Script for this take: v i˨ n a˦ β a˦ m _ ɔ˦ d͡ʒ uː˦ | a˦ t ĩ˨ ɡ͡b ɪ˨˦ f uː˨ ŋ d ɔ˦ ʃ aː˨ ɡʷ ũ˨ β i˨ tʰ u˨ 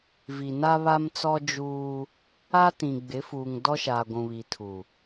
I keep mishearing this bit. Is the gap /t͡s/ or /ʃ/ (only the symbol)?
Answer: t͡s